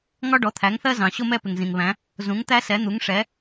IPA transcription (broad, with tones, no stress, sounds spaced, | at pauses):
ŋ ɒ˥ ɖ ɔ˩˥ t̪ʰ æ˩˥ ŋ θ ɜ˥ z ɑ̃˩ ɕ ʊ˥ m ɛ˥ p ɪ˩ ŋ z ĩ˩ ŋ β æ̃˩˥ | z ũ˩˥ ŋ t̪ æ˥ s ɛ˩˥ n̪ u˩˥ ŋ ʂ ɛ˩˥